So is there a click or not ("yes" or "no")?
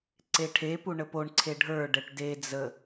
yes